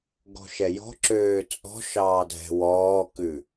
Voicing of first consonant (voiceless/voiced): voiced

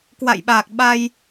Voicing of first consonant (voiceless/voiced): voiceless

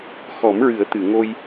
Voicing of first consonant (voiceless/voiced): voiceless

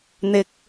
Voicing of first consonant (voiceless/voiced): voiced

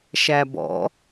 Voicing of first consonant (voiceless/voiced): voiceless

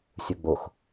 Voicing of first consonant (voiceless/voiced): voiceless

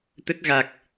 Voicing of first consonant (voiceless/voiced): voiceless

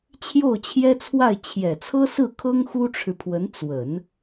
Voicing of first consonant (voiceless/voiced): voiceless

